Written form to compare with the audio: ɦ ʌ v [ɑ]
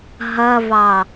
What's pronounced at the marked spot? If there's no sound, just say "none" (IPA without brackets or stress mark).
ɑ